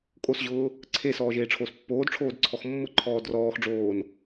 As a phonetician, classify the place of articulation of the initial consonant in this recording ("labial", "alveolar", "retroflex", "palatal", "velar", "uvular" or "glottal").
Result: velar